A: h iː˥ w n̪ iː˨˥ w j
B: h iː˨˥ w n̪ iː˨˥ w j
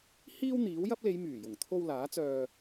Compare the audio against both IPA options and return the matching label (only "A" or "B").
A